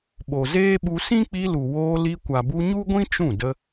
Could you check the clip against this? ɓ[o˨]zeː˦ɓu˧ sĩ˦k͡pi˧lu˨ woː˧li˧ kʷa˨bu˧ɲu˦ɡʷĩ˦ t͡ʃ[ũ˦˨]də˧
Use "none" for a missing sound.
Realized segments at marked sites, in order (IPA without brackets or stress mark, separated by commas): o˨, ũ˦˨